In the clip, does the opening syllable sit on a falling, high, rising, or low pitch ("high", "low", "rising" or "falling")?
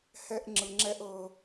high